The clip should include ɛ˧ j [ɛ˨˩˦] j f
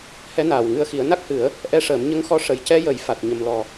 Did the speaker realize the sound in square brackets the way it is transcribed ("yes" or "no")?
no